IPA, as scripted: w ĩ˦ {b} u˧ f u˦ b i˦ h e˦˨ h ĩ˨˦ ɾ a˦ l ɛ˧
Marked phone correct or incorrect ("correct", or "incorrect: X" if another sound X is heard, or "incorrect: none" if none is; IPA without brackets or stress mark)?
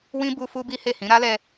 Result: correct